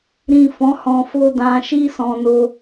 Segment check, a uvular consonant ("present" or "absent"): absent